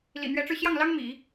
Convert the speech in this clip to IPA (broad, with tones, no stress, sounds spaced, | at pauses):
l ḭ˨˩ n̪ ɥ ɛ˧˥ ʈ͡ʂ ɻ̩˧ ɕ j ɑ˥˩ ŋ l ɑ˥ ŋ m ḭ˨˩˦